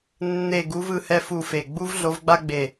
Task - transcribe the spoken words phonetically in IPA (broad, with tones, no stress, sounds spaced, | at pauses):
nː e˦˨ ɡ u˧˥ v ɯ˦˨ h ɛ˥ f u˦˨ f e˦˨ ɡ͡b u˥ v ɮ o˧˥ v ɡ͡b a˥ ɡ͡b e˦˨